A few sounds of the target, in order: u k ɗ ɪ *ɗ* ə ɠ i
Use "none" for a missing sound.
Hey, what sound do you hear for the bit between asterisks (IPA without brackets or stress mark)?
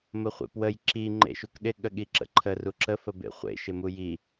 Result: ɠ